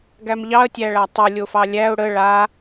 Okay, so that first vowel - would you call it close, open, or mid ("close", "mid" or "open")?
open